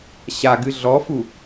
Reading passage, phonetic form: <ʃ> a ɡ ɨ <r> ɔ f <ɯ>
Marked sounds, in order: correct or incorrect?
incorrect, incorrect, incorrect

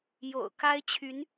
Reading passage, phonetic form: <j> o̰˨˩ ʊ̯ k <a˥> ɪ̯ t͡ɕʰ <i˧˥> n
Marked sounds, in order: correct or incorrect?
correct, correct, incorrect

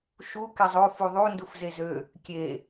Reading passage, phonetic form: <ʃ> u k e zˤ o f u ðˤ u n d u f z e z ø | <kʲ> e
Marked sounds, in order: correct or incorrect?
correct, correct

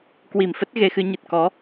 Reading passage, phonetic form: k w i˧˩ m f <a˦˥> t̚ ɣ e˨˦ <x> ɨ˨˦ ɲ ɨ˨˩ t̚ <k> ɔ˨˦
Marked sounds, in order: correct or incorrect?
incorrect, correct, correct

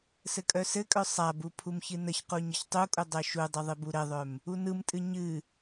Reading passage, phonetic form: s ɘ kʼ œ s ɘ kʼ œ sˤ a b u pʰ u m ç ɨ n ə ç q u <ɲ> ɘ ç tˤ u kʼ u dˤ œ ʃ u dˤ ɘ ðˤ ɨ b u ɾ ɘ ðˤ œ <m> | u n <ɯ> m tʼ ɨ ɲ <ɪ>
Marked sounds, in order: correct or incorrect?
correct, correct, correct, incorrect

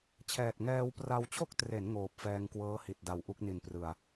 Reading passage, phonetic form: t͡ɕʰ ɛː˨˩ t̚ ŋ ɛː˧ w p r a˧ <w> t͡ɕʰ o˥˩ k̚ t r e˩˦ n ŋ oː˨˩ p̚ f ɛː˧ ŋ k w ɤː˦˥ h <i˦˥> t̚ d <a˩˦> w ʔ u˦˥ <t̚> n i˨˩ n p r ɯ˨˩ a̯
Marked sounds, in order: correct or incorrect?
correct, incorrect, incorrect, incorrect

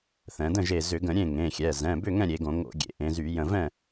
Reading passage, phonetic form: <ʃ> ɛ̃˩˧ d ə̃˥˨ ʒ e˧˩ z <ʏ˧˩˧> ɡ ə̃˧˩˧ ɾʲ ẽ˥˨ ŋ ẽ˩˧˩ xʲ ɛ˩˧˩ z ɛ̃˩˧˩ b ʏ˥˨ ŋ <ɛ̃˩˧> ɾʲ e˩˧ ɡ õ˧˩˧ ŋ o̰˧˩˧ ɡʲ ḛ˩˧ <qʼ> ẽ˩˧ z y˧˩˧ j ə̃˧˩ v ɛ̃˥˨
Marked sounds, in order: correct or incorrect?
incorrect, correct, incorrect, incorrect

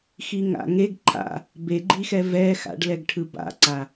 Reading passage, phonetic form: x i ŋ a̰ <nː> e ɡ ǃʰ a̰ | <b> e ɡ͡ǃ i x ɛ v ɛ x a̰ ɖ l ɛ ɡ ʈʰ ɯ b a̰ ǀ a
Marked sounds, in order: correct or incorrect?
incorrect, correct

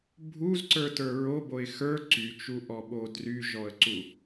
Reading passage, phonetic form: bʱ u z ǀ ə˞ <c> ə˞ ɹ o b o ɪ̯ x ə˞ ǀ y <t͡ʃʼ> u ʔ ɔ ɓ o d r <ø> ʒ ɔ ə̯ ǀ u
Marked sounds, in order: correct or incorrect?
incorrect, incorrect, incorrect

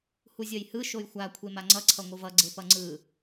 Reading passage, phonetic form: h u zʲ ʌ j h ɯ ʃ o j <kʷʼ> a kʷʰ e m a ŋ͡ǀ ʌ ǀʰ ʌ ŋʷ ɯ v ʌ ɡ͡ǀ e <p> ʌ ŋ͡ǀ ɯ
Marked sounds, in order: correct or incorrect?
incorrect, correct

